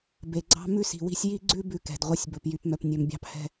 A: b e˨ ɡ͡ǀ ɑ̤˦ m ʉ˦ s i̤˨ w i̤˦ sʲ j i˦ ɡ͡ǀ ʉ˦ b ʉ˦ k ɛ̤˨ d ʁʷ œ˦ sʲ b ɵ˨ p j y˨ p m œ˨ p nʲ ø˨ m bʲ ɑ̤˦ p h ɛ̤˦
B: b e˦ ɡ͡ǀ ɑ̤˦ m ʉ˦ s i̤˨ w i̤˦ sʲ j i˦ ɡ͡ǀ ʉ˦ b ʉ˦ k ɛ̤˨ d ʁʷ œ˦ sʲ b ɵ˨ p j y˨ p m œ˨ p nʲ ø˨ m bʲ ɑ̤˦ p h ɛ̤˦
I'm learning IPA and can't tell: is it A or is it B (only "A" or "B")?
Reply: A